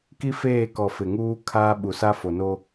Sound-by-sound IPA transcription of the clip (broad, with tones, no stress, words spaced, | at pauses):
ki˦feː˦˨kɔ˨ fɪ˨ŋuː˦ kʰaː˦ ɓu˨sa˦fo˨no˦